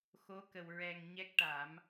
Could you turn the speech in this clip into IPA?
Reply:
xo˧˥kə˨˩w ɹɛ˨˩ŋ ɲɛ˦˥k̚ʈa˨˩˦m

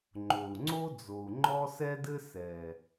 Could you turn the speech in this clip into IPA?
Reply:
ŋ͡ǃo˨u̯ŋ͡ǀo˦d͡zo˨u̯ ŋ͡ǃɔ˦sɛ˦dɘ˦ sɛ˨

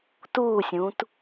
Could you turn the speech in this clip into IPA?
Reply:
tusʲũt

